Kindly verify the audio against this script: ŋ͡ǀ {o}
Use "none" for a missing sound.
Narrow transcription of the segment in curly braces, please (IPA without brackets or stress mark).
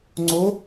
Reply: o